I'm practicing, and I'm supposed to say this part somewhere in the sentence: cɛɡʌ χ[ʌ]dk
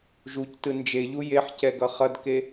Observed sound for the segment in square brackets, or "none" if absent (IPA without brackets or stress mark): ʌ